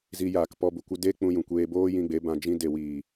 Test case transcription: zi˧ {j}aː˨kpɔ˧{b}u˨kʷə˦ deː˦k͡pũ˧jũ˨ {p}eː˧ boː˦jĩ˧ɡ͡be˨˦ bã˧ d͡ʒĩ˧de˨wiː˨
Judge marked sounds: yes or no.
yes, yes, no

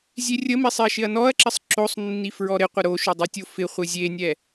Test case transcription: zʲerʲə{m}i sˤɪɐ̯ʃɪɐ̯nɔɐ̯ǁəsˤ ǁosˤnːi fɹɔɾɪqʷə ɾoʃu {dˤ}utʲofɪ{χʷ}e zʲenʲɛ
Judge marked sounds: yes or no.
yes, yes, yes

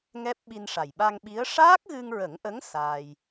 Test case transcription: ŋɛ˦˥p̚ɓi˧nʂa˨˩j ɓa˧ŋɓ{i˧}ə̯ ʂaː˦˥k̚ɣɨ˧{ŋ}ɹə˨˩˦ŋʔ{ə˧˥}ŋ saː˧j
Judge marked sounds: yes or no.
no, yes, yes

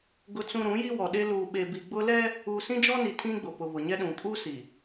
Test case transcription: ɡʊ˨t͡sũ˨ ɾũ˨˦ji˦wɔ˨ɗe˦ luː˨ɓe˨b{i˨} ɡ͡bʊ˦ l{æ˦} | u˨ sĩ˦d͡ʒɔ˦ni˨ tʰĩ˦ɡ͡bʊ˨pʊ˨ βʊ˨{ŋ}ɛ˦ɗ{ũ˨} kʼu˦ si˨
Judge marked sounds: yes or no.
yes, no, no, yes

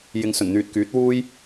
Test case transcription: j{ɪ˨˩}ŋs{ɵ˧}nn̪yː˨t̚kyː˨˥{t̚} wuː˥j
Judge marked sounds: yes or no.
no, no, yes

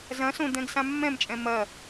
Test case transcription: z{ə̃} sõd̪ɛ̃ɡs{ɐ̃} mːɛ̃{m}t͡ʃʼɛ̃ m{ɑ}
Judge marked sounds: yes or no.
no, no, yes, no

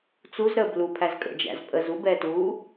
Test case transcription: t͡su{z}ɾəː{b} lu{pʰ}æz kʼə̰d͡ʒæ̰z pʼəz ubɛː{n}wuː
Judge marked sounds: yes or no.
yes, yes, yes, no

